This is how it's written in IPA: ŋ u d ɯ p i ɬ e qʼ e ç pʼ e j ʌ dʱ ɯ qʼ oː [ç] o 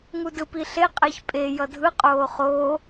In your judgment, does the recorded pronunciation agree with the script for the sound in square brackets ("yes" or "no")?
no